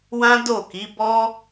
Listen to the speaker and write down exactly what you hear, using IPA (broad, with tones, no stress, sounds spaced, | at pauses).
w ã˦ d o˦˨ k i˨˦ b ɔ˦